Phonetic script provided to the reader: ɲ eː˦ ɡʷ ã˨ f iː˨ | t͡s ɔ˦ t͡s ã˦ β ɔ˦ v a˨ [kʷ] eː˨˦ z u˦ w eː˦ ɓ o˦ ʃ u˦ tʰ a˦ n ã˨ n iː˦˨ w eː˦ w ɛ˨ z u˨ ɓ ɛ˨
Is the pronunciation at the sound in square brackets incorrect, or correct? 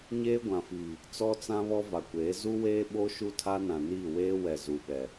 correct